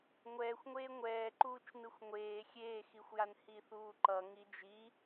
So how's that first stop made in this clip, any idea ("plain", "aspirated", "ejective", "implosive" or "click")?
click